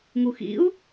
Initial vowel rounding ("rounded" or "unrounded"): rounded